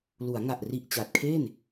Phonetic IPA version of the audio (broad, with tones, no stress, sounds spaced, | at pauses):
l u˩˦ a̯ ŋ a˨˩ ʔ r i˨˩ ʔ t͡ɕ a˨˩ t̚ kʰ e˥˩ n